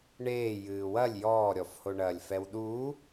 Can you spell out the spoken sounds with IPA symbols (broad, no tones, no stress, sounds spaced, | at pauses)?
ɳ eː j ɨː w ɐ lʲ j ɔː ɾʲ ɔ f h o ɳ ɐː lʲ f ɛ w ɗ uː